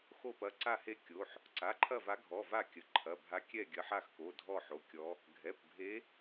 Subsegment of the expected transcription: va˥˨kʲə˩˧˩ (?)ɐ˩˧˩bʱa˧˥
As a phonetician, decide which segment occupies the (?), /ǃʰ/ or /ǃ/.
ǃʰ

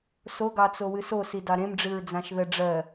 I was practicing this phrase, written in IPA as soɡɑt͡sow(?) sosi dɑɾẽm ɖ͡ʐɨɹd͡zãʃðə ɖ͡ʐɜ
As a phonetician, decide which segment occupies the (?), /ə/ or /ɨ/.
ɨ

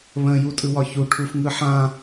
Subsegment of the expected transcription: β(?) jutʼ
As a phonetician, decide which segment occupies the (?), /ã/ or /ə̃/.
ə̃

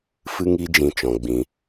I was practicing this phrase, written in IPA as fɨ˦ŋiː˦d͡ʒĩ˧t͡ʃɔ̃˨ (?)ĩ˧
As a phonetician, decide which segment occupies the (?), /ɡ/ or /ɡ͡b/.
ɡ͡b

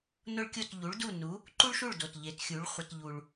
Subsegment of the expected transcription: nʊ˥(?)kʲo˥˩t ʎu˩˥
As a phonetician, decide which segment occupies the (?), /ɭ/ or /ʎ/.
ɭ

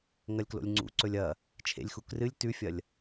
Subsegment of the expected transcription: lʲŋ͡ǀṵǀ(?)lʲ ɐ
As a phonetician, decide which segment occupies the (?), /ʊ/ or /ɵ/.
ɵ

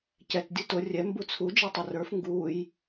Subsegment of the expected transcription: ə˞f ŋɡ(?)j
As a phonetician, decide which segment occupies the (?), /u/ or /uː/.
uː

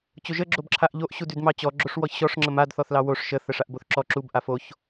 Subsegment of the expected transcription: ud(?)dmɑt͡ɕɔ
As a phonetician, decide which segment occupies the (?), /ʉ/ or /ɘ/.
ʉ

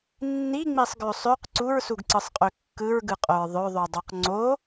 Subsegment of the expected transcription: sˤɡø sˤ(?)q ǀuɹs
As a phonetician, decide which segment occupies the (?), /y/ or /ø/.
ø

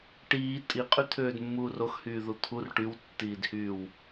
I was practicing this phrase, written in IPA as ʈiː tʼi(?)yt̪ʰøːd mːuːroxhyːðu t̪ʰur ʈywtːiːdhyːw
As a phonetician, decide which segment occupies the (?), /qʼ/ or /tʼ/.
qʼ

